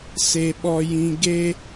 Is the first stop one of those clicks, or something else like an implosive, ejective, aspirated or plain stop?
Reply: implosive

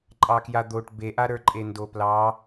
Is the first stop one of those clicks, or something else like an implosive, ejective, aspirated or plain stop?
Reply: click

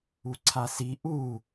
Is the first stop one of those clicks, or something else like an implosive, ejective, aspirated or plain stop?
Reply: click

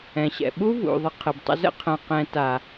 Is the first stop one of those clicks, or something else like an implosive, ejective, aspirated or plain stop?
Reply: implosive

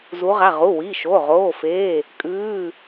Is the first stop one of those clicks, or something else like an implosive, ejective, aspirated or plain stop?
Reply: ejective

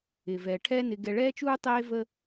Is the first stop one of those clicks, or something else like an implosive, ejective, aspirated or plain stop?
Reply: aspirated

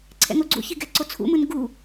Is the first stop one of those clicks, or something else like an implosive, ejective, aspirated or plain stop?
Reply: click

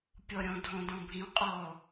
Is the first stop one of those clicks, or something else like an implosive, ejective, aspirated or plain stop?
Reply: plain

